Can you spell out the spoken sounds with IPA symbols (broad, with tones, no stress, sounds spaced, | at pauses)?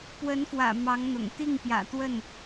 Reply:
p w ə˧˥ n f w ä̰˨˩ m ɑ˧˥ ŋ n̪ ʊ̰˨˩ ŋ t̪ i˥˩ ŋ p j ä̰˨˩ t̪ w ə˥˩ n